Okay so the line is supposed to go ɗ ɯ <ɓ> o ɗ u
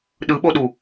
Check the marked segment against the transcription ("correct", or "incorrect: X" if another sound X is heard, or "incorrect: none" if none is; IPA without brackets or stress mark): correct